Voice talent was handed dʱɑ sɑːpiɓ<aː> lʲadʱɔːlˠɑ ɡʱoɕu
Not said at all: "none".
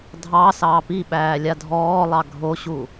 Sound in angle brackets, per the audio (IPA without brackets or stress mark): æː